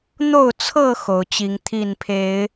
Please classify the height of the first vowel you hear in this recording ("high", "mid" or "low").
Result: mid